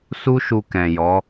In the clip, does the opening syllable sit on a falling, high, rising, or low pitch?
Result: high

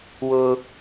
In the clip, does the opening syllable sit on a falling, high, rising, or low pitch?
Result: high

